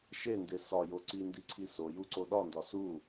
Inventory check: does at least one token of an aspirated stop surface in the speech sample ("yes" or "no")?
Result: yes